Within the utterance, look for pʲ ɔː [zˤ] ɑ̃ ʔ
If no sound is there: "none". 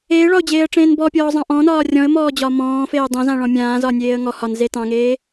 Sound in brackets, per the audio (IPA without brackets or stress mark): zˤ